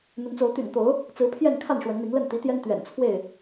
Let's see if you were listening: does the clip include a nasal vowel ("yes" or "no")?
no